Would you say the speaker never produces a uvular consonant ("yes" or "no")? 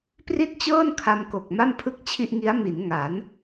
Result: yes